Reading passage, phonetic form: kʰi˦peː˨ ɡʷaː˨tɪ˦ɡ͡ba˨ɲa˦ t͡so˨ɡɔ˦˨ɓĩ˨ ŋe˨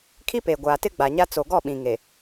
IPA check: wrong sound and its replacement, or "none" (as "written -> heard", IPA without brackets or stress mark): none